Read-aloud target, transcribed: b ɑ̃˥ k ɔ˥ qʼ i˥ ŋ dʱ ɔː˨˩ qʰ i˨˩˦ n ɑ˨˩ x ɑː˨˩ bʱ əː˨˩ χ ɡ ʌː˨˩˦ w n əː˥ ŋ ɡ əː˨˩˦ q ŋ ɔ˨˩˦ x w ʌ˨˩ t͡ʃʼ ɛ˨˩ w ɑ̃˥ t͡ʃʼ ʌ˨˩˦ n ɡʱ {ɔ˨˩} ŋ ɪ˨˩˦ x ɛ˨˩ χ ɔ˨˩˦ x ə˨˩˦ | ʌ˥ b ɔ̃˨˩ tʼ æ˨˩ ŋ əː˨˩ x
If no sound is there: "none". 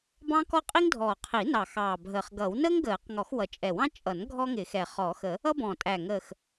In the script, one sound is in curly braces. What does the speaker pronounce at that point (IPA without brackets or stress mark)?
ɔ˥